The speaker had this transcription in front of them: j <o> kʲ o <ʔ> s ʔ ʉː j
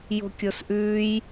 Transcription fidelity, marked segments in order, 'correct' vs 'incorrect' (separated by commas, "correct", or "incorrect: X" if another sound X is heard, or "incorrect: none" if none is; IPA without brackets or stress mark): incorrect: o̤, incorrect: none